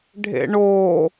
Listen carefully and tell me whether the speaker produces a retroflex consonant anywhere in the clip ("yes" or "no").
yes